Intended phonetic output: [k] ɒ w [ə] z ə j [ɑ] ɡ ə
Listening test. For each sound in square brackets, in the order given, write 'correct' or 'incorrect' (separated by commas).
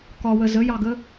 correct, correct, correct